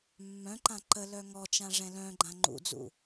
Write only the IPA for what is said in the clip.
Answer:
mː œ̃ ǃ ã ǃ ə l œ ŋ ɔ t͡ʃ ã ʐ ɛ̃ l œ̃ ɡ͡ǃ ã ŋ͡ǃ ṵ d͡z ṵ

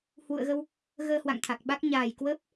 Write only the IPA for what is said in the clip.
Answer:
h w ṵ˧˨ ə̯ ɣ ə˧ w | ɣ əː˧ h w a̰˧˨ ŋ t̪ʰ a˨˩ k̚ ɓ a˦˥ k̚ ɲ aː˨˩ j k w əː˦˥ p̚

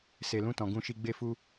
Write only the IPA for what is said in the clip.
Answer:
s e˨ l ũ˧ t ɔ̃˨ ɡ ũ˧ ʃ i˧ ɡ͡b e˦ f u˦

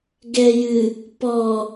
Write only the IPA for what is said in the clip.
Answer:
ɡ ɛ j ɨ | p ɔ

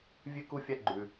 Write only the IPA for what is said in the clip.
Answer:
vʲ ʉ˥ k u˥ fʲ a˥ ɡ͡ǃ ʉ˥

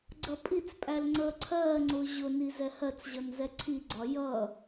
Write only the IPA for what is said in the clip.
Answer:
ɡ͡ǀ ʌ pʼ i t͡s pʼ æ l ŋ͡ǀ əː ǀʰ ɜː ŋ͡ǀ ʊː ʑ ʊ n i z ɛ h ɜ t͡s ʑ ʌ n z ɛ ǀʰ i ɡ͡ǀ ɒ j ʌ

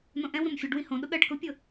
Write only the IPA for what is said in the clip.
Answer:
n õ ʔ ɛ̃ w ɾ õ m fʲ ɤ ɖ w ĩ h õ ɗ ʊ ɠ ɜ ɖ k ʊ pʲ ɤ

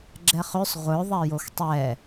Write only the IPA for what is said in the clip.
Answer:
ɡ͡ǁ ɛ χ ø sˤ ʁʷ œ ðˤ ɛ j o x tˤ ɛ

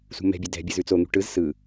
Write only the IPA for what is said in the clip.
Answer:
s ṳ m ɛ̤ bʲ ɵ d ɛ̤ bʲ ɯ z ʉ t͡s o n̪ ṳ ʈ ɯ z s ɯ

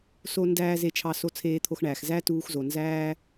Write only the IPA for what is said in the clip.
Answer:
s o˥ n d æː˥ z e˧ t͡ʃʰ ɑ˧ s o˧ t͡sʰ eː˧ t̪ʰ o˧ x ɳ æː˩ x z æ˥ t uː˧ x z o˩ n z æː˥

